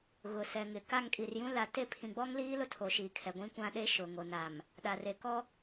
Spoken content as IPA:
ɣ ʊ˨ s ɛ˨ ŋ ɪ˨ k a˦˨ ŋ kʼ i˨ r j ũ˦ l a˨ t e˦˨ pʰ ĩ˨ ɡ͡b ɔ˦ ŋ l iː˦ l ʊ˦ tʰ o˨ ʃ iː˨ kʰ ɛ˨ ɡʷ ĩ˦ kʷ ã˦ ɗ e˦ ʃ ʊ˨ ŋ o˨ n a˨ m | ɗ a˨ r e˨ k ɔ˦

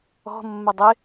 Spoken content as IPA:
ɔ̤ mː ɐ dˤ ɪ

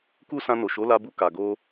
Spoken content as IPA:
k u˦ s ã˧ n o˨ ʃ o˨˦ l a˧ b u˧ k a˨ ɡ o˧

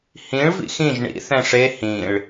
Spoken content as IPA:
h ĩ ɭ v ḭ x ĩ ʒ ɳ ḭ θ ɛ̃ ʂ e h ĩ ɭ

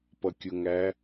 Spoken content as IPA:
p ʌ kʲ ʊ ŋ æ

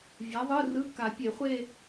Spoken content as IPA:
vʲ a˨˥ ðˤ ɯ˧˥˧ r ɯ˧˥˧ k a˨˩˦ pʲ e˨˩˦ χʷ e˥˧

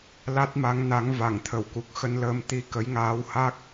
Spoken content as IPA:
l a˦˥ t̚ m a˨˦ ŋ n a˨˦ ŋ v a˧˩ ŋ t̪ʰ ə˧˩ w k u˨˩ k̚ x ə˧ n l əː˧ m t̪ i˧ k ə˨˦ j ŋ aː˨˦ w h a˦˥ k̚

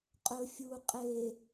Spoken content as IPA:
qʼ ɵ fʲ u qʼ e

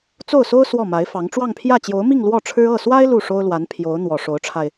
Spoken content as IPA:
t͡s o˥˩ ʊ̯ s o˥ ʊ̯ s w ɔ˥˩ m a˧˥ ɪ̯ f ɑ˧˥ ŋ ʈ͡ʂ w ɑ˥˧ ŋ pʰ j ä˥˩ t͡ɕ j o˧˥ ʊ̯ m i˥˧ ŋ l w ɔ˥˩ ʈ͡ʂʰ ɻ̩˥ ɤ˥˩ s w a˥ ɪ̯ l u˥˩ ʂ o˥ ʊ̯ l w a˧˥ n pʰ j o˧˥ ʊ̯ n̪ w ɔ˨˩ ʂ o˧˥ ʊ̯ ʈ͡ʂʰ a˧ ɪ̯

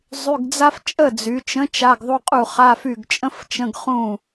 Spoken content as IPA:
zˤ y˧˥˧ ɡ d͡z a˥ f t͡ʃʼ ə˥˩ d͡z y˩˧ t͡ʃ ə̃˨˥ t͡ʃ a˧˥˧ ɡ ðˤ u˧˥˧ qʼ u˥˩ χ a˧˥˧ f y˥˩ ɡ t͡ʃʼ ə̃˥ f t͡ʃ ə̃˧˥˧ ɡ χ ũ˥˩

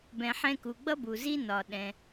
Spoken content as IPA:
b ɛ̃˩ ħ ɛ̃˧ k u˩ ɡ͡b ʌ˥ b u˩ z i˥ n ɒ˩ ɗ ɛ̃˩

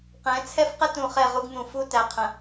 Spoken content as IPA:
q ɛ̃˨˦ t͡sʰ ɛ˦ f q ə˦ t ũ˨ χ ɛ˦˨ ʁ u˦ ɡ n̪ ũ˨ f u˦ t æ˨ qʰ ə̃˨

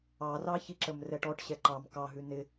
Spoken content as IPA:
ɑ r ɑ ç i ǁ ə m r ɛ ʈ ɔ ʈ ɕ ɛ ǃ ɑ m k ɑ ɦ ʉ n ɪ

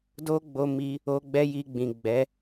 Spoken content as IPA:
d o˦ ɡ͡b o˧ m i˧ | o˧ ɡ͡b ɛ˦ j i˧ ɡ͡b ĩ˨ ɡ͡b ɛ˨˦

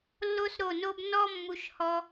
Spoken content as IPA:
lː o˦ s ɾ o˦˨ n o˦ b n ɔ˦ mː u˧ ʃ h ɔ˧

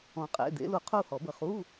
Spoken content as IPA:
ɔ̃˧ qʼ ḛ˧˥˧ d̪ ḛ˧˥ l u˧ qʰ u˥˧ h ɔ˨˩˦ b ə˧ χ u˧˥˧

